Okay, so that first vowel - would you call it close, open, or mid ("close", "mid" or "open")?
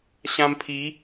open